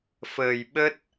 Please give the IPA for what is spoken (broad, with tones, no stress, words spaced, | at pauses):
fəː˨˩jɓə˦˥t̚